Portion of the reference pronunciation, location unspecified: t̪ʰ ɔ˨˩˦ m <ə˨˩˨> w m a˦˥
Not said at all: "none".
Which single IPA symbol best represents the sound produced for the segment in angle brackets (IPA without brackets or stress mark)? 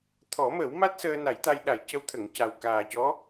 ə˨˩˦